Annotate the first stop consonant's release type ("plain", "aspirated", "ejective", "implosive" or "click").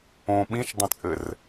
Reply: implosive